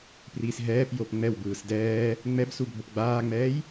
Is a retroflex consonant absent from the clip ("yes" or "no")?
yes